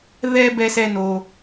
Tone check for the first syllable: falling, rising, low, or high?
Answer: high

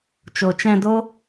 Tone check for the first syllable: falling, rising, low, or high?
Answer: low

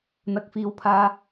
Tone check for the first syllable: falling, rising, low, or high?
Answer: low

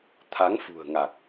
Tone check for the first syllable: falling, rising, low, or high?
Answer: rising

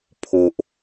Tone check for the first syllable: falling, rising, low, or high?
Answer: high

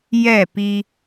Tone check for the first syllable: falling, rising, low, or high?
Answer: falling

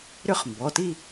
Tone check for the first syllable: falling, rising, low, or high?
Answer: falling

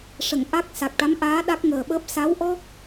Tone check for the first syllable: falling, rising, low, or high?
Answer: low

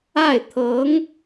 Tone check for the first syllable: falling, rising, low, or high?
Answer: falling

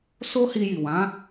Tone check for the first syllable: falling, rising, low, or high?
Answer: high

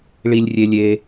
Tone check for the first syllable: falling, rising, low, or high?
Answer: high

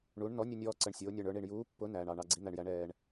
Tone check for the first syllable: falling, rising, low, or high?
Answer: rising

